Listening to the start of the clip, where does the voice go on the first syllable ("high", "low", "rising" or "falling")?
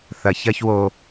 low